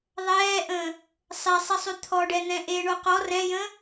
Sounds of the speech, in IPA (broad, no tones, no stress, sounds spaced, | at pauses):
ðˤ ɛː ʔ ə̃ː | sˤ e sˤ ɪ sˤ y t̪ʰ ɔ ɖ ɛ n̪ ɛ̃ ʔ e ɳ o q ɔ r ɛ̃ j ə̃ː